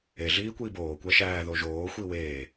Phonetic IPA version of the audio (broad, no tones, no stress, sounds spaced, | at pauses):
e ɮ iː kʷ iː b oː kʷ æ ʃ æː ð o ʒ oː xʷ i w eː